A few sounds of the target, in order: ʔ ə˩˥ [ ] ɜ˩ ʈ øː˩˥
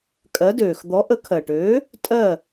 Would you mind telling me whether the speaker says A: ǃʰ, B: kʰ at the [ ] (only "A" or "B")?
B